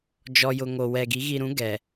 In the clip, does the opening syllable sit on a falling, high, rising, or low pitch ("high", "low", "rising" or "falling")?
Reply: low